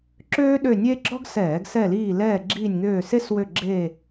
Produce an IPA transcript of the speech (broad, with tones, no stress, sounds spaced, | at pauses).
ǁ øː˥ ɗ ø˦˨ nʲ e˥ ɡ͡ǁ ɔ˥ ɡ s ɛː˧˩˧ ɡ s ɛ˦˨ l iː˦˨ l ɛː˦˨ ɡ͡ǁ iː˦˨ nʲ ŋ øː˦˨ s e˥ s w ø˦˨ ɡ͡ǁ eː˦˨